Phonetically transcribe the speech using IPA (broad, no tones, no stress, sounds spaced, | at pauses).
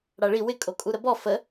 ɽ a ɭ i w ɪ kʼ o kʼ u ɾ ə b ɔ f ə